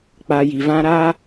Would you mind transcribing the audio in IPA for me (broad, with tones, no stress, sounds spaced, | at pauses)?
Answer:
k͡p a˧ j i˨ v ã˦ ɾ a˦